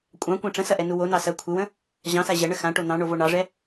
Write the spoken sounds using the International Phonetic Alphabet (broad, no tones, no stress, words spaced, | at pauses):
kʷʼɑ̃kʷã ʈ͡ʂə̃sɐʔɛnu wonɑ sɐ kʷʰɪwə̃ | ʑɑ̃sa ʑɐɳə xãʈo n̪ɑ̃ɳovo ɳɑʐɛ